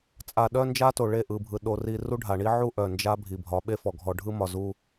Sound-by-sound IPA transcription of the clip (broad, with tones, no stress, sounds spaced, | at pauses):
t͡sʼ a˨ ɗ œ˦ n d͡ʒ a˦ t o˨ ɭ e˦˨ ʔ ɯ˨ bʱ ɯ˨ ɗ o˨ r i˨ r u˦ ɖʱ a˨ ɳ i˦ ʕ u˦ ʔ œ˨ n d͡ʒ a˦ bʱ i˨ bʱ ɒ˨˦ ɓ e˦ f ɔ˨ ɡʱ ɔ˨ ɖʱ ɯ˦ m ɒ˨ z u˦